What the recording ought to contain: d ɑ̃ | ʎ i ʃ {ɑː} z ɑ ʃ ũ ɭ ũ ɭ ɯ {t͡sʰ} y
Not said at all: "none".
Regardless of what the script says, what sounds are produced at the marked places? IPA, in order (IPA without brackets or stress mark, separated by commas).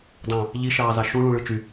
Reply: ɑː, t͡ʃ